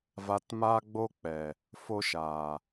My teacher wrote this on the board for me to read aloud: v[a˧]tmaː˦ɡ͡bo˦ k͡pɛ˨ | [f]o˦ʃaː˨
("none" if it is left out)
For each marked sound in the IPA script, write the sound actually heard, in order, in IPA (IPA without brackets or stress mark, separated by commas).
a˧, f